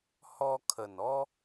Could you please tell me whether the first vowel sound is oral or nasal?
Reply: oral